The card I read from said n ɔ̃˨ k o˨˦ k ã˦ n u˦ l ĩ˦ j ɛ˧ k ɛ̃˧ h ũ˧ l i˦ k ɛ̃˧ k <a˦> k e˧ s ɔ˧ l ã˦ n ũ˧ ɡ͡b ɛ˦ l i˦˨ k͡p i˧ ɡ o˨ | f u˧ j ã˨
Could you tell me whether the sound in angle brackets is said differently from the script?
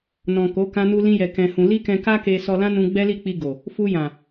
no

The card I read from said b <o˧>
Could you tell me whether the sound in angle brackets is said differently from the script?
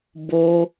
no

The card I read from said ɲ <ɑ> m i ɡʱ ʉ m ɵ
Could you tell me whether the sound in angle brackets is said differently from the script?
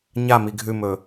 yes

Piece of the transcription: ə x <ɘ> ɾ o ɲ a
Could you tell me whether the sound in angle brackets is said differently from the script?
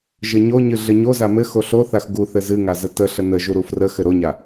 no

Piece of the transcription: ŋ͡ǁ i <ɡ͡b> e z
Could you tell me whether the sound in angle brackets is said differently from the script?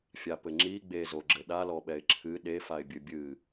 no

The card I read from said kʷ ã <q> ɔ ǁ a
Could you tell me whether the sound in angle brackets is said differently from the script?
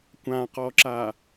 no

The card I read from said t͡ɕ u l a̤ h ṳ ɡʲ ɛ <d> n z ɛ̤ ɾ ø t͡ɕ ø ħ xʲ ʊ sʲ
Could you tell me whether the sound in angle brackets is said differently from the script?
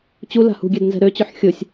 no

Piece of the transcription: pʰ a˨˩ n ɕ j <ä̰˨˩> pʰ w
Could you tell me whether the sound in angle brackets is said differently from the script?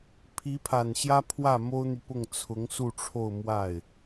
yes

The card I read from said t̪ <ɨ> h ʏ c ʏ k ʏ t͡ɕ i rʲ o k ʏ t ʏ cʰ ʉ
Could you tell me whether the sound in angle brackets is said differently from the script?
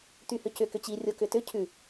yes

